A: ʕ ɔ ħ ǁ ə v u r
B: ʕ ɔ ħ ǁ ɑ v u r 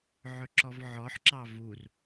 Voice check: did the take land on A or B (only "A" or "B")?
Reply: B